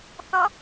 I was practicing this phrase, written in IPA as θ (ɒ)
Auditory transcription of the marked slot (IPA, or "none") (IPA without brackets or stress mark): ʌ